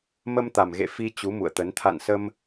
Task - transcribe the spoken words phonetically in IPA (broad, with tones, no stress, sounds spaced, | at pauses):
m ə˧ m t̪ a˨˩ m ɣ ḛ˧˨ f i˧ t͡ɕ u˨˦ m ṵ˧˨ ə̯ t̪ ə˨˦ n t̪ʰ a̰˧˨ n s ə˧ m